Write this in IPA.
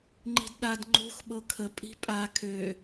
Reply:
ŋ͡ǃi̤dɗad ŋ͡ǃo̤x ɓɤkʰə pʼi̤pʼa kʰø

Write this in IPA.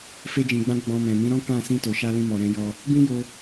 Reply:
fe˧d͡ʒĩ˨ɡ͡bã˧ ɡ͡bɔ̃˧mɛ̃˨ mĩ˨˦ɾɔ̃˦ kã˦˨ sĩ˧to˨ʃa˧ lĩ˧mɔ˨ ɾɛ̃˧ jɔ˧ | bĩ˦jo˧

